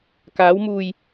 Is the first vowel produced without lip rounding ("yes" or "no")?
yes